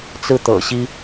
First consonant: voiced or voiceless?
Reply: voiceless